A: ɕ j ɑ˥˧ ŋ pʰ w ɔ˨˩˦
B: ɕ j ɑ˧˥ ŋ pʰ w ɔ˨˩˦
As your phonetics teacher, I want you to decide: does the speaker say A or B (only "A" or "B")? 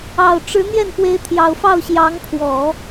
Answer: B